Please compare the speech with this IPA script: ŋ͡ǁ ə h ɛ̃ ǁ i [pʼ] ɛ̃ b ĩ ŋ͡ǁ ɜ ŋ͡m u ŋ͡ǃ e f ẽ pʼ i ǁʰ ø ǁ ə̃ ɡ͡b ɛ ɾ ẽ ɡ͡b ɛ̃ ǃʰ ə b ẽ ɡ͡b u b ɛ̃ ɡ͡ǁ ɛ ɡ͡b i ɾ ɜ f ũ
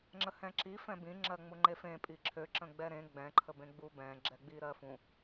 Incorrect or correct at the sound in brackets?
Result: incorrect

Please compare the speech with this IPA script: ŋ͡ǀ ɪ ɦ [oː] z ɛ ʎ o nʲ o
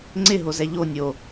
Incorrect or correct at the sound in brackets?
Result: incorrect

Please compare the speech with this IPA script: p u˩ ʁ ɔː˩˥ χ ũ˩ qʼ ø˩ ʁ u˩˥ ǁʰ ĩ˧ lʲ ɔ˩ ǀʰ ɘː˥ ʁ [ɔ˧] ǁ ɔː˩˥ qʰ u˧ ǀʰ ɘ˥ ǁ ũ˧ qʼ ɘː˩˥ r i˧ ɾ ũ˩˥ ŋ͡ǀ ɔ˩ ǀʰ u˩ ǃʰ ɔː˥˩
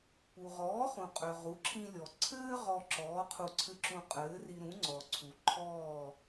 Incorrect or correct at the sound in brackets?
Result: correct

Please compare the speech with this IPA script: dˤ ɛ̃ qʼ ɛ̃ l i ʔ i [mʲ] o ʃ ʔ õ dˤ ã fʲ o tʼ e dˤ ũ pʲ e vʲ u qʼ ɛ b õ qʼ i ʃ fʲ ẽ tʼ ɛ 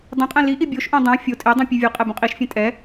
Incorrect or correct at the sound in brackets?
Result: incorrect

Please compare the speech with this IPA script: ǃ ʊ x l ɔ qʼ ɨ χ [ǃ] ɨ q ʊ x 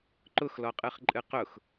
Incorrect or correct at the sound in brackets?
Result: incorrect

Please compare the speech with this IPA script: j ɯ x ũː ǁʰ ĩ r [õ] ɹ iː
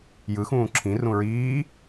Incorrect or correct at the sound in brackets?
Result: incorrect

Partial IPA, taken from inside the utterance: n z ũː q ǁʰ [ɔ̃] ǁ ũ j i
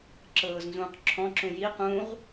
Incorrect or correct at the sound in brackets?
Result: correct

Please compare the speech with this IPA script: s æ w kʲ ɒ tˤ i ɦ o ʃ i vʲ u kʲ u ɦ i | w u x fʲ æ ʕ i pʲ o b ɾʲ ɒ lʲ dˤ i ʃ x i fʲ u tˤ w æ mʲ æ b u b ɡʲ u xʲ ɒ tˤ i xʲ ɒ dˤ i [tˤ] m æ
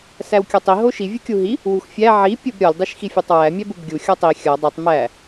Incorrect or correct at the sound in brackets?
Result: correct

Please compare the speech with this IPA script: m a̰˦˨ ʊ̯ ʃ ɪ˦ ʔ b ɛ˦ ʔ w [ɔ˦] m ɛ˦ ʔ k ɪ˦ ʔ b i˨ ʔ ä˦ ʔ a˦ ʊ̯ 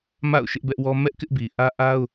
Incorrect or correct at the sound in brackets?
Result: correct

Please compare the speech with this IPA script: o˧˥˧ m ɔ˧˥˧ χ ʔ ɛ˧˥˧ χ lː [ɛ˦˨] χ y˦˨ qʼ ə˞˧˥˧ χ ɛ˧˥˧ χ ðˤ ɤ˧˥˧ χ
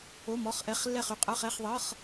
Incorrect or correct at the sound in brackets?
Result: correct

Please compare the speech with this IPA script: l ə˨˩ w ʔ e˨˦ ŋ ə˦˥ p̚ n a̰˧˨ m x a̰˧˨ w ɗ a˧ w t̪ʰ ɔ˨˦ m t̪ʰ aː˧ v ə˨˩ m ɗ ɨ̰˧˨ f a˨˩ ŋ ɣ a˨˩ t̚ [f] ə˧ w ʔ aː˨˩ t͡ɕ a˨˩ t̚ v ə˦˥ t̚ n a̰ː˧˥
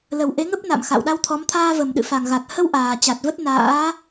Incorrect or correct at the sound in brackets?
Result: incorrect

